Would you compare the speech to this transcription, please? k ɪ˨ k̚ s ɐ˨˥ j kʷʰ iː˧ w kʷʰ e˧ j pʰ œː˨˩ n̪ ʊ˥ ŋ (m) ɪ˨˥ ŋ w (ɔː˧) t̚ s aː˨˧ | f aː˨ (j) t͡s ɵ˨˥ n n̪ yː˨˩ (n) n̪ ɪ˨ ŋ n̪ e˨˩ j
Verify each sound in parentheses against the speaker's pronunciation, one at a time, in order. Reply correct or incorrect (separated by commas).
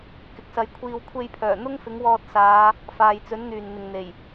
incorrect, correct, correct, correct